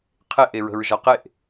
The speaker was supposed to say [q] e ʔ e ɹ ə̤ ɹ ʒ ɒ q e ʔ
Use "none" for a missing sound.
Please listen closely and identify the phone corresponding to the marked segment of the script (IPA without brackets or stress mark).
qʰ